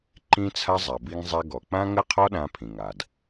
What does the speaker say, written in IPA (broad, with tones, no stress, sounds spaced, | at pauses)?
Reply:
ǃ ĩ˥ t͡sʰ a˥ zˤ a˩ b i˧ ŋ zˤ ɛ˧ ɡ ɔ˩ k͡p ã˥ ŋ ə˥ qʰ ɔ˥ ɗ ã˧ pʰ ĩ˩ ŋ a˩ d